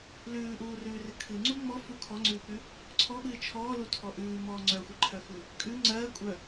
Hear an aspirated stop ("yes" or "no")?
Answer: yes